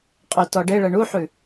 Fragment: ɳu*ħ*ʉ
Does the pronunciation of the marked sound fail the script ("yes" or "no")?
no